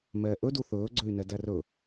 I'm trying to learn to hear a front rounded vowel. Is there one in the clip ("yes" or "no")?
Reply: yes